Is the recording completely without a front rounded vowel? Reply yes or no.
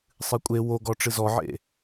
yes